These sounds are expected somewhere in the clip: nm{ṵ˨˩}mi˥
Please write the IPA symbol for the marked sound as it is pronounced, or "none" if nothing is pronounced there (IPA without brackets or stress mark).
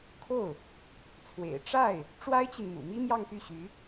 ṵ˨˩